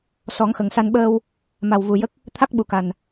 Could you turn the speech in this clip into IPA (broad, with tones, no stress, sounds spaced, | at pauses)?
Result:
s ɔ˨˩˦ ŋ x ə˨˩ ŋ s a˧ n ɓ əː˧ w | m a˨˩ w v u˨˩ j ə˦˥ k̚ | t̪ʰ a˦˥ k̚ ɓ u˨˩ k a˨˩ n